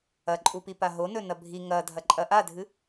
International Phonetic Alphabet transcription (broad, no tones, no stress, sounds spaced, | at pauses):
ɐ ǃʼ u p i p a ɦ o n ɵ n ɐ bʱ i ŋ ɐ dʱ ɐ ǃʼ ɐ ʔ a dʱ ɨ